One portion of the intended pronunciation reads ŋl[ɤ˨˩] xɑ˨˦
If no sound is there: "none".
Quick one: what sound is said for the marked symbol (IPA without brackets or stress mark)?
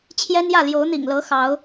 ɤ˨˦